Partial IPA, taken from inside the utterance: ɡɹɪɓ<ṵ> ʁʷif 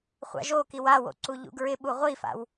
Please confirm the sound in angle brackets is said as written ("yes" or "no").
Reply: no